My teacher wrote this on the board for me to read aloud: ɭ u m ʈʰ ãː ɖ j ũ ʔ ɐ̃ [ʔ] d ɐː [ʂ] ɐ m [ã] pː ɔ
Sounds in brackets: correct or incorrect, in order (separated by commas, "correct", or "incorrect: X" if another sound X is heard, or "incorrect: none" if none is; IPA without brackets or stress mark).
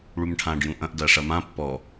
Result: correct, correct, correct